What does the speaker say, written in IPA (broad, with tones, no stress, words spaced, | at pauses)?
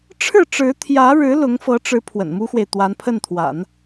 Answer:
ʈ͡ʂʰɻ̩˥˩ʈ͡ʂɻ̩˧˥t̪ʰjä˧˥ɻɻ̩˧˥ lʊ˧˥ŋfɤ˧˥ʈ͡ʂɻ̩˧˥ pʰwə̰˨˩nmu˥xwe˨ɪ̯ t̪wa˧˥npʰə˥˩nt̪ʰwa̰˨˩˦n